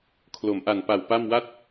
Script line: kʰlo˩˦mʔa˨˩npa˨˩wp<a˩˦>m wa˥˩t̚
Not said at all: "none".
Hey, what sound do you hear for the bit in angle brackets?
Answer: a˥˩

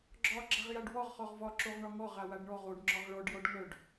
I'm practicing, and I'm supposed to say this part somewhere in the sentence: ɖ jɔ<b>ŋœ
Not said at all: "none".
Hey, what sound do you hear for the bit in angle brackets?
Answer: ɖ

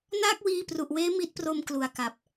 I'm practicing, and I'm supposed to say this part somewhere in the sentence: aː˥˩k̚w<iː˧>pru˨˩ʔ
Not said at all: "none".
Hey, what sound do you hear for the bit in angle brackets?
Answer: iː˧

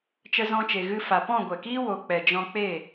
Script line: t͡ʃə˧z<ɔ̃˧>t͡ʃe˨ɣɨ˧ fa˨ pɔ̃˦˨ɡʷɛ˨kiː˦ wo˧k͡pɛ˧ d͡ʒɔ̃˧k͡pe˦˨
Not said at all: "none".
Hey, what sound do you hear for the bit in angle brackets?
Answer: ɔ̃˧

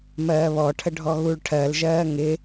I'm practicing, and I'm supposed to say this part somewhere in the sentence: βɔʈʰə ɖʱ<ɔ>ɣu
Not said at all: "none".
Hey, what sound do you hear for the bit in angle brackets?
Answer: ɔ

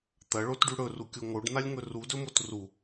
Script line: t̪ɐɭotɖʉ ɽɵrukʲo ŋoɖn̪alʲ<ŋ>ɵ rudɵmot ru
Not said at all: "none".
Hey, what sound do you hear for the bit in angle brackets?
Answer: ŋ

